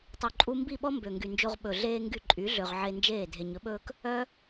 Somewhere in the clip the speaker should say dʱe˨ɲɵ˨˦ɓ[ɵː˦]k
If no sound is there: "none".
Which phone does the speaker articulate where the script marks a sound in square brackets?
ɵː˦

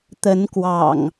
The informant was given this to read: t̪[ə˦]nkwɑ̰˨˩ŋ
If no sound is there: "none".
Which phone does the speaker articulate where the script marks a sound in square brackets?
ə˨˦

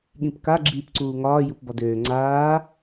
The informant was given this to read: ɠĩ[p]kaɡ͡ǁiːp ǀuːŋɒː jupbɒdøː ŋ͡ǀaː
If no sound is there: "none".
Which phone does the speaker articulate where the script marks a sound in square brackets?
p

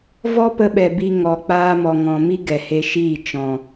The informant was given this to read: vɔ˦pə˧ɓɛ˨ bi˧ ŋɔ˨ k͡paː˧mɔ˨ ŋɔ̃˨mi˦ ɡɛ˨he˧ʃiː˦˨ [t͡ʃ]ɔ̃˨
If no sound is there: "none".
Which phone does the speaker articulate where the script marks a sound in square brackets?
t͡ʃ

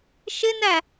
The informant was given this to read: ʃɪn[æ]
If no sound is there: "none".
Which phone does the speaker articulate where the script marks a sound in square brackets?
æ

